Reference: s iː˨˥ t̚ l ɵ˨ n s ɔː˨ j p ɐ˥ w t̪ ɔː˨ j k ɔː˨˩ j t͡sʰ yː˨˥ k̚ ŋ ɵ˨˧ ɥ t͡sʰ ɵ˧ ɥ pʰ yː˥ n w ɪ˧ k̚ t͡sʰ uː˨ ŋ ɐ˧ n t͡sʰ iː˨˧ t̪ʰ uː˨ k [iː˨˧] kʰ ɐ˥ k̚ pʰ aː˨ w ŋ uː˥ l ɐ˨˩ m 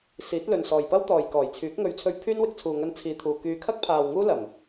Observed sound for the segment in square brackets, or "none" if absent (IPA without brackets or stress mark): yː˨˧